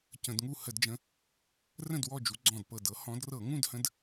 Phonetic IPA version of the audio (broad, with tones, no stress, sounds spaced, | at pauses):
c ə̃˧˩˧ d ŋ u˥˨ h ə˧˩˧ d d͡ʒ ə̃˨˦ | r ə̃˥˨ d w ɔ˥˨ d͡ʒ u˨˦ ɡ͡ǀ ɔ̃˧˩ d p ɤ˧˩ d ɤ˨˦ h ɔ̃˨˦ d r ɤ˧˩˧ ŋ ũ˥˨ d h ə̃˨˦ d